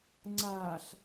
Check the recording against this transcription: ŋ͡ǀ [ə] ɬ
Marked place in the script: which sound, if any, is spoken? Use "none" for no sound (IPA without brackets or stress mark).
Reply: a